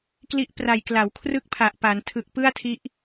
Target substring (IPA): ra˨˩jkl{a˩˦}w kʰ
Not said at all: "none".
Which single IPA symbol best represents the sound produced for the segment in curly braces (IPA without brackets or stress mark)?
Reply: a˩˦